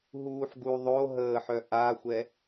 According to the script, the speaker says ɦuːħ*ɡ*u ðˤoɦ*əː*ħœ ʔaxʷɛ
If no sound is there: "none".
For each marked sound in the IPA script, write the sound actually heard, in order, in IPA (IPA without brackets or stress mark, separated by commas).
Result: ɡ, əː